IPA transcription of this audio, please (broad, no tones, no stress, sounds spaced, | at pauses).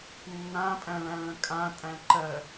nː ã pʼ æ̃ ɭ æ̃ ɭ ə̃ kʼ ã tʼ æ̃ ǃ ɜ